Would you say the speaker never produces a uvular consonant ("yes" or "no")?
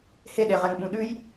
no